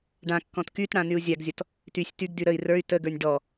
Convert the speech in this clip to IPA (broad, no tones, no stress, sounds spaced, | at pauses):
ɖ ã kː ɔ̃ t k y t ɽ ã n y u̯ zʲ a ɡ zʲ ɔ t | t y sʲ t y ɡ d y ɾ ə i̯ r ə˞ y̯ t ə ɡ ə˞ nʲ ɖ ɔ